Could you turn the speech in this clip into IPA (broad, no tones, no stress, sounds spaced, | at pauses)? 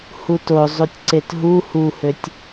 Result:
h u t o zˤ u tʲ ǀ e t ɦ u h u h ø tʲ